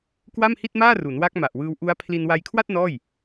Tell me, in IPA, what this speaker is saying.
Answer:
kwa˥˩mhi˥˩t̚maː˥˩ ru˩˦nwa˦˥k̚ma˨˩ʔwɯː˧w ʔu˦˥a̯ pʰli˧nwa˧jkʰwa˥˩t̚ nɔː˥˩j

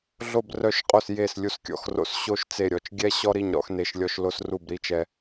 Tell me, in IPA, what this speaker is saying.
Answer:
ɮo˦˨brœ˦˨ʃqʼo˦˨s je˦˨slʲu˦˨skʲɔ̰˦˨xro̰˦˨s ɕo˦ʃ t͡se˦˨ɾʲɔ˦˨t͡ʃ ɡʲɛ˦ɕɔ˦ɾi˦˨ɲ ɾɔ̰˦xne˦˨ʃlʲɔ˦ʃ lo˦sru˦˨bɾi˦t͡ʃɛ˦

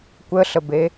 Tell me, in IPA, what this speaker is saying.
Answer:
kʷəɬəbe

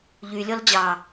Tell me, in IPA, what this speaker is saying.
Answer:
ʎylʲɔl d͡ʑɑ

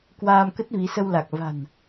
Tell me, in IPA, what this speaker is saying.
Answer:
kwaː˧mkə˦˥t̚vi˨˦sə˧w la˨˩k̚va̤˨˩n

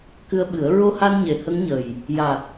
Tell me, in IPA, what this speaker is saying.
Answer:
kɨ˧ə̯ɓɨ˨˩˦ə̯ ɹo˧ha˧nɲe˨˩ hə˧˥ŋɲə˨˩j | ja˨˩t̚

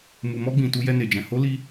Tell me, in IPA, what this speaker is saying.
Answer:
mu˧mɔ˦ɡ͡bĩ˧ tu˦jɛ˦ne˧d͡ʒɛ̃˧ ho˦li˦

